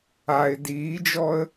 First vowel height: low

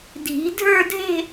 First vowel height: high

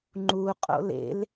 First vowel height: high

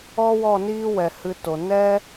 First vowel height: mid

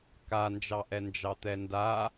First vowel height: low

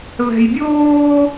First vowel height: mid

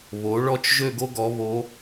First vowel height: mid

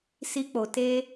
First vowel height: high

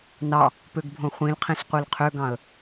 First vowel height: low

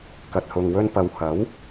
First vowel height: low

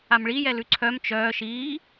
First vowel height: low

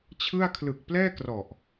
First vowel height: high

